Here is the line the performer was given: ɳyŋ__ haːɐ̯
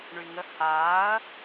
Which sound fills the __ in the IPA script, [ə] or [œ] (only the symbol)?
ə